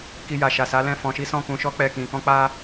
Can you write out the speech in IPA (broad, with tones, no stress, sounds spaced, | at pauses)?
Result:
k i˧ j a˨ ʃ a˨ s a˨˦ l ɛ̃˦˨ f ɔ̃˧ ʃ i˦ s ɔ̃˦˨ k ũ˧ ʃ ɔ˦ k͡p ɛ˦˨ k ĩ˧ k ɔ̃˦ k͡p a˦